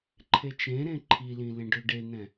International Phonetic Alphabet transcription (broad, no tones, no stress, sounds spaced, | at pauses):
ǃʰ e t͡ʃ ẽ ɾ ẽ ǃʰ i l ĩ l ẽ ɖ ø ɖ e n̪ ɛ̃